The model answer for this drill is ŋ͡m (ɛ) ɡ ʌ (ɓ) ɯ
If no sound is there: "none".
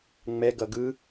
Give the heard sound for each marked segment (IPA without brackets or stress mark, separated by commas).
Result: ɛ, ɡ